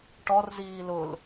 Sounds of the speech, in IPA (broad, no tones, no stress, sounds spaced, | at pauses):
ʈ ɔ r z iː l ʊ l